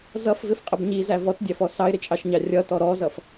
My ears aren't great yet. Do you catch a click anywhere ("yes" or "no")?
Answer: no